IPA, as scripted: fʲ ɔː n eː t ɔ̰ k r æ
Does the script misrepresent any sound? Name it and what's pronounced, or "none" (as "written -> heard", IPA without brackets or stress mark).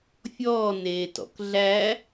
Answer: r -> ɮ